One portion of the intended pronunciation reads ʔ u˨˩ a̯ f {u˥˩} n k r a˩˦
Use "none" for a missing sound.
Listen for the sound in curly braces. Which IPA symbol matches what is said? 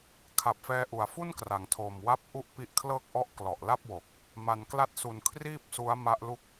u˥˩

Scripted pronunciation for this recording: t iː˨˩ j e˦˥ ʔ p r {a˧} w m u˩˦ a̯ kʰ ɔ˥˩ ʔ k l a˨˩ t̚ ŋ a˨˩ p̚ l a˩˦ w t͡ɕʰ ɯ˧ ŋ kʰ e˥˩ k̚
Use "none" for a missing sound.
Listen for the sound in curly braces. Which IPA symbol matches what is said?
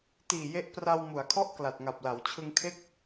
a˧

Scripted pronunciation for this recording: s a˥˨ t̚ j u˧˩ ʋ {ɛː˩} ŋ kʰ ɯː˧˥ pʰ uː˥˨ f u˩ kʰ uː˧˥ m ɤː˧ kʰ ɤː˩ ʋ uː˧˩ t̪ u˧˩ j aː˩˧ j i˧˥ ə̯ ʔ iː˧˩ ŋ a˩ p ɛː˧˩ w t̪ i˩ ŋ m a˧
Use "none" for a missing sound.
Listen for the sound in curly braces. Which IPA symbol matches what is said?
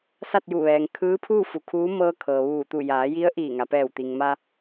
ɛː˩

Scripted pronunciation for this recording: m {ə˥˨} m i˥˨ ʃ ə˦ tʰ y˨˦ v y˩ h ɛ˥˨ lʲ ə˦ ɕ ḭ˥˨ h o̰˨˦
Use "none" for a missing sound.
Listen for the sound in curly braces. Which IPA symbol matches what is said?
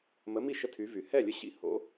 ə˨˦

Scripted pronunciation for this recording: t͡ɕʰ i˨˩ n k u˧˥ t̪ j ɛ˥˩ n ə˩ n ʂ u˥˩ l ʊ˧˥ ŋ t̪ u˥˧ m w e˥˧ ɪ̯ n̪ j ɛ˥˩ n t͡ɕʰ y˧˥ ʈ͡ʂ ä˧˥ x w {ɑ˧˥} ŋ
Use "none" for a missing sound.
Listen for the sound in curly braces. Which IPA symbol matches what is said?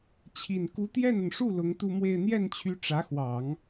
ɑ˨˩˦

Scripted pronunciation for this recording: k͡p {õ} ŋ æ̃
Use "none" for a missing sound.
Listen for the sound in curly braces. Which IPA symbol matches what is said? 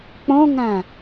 õ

